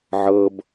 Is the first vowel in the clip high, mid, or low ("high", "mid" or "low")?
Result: mid